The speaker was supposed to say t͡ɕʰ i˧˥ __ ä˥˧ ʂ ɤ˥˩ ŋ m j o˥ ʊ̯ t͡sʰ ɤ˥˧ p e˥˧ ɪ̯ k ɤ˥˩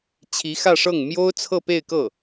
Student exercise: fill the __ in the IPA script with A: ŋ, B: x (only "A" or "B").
B